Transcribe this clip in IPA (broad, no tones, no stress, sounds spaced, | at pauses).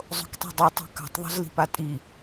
zˤ o̤ k tˤ i̤ dˤ i tˤ ɛ̤ k a̤ tˤ ðˤ o̤ z l i̤ p a tʼ i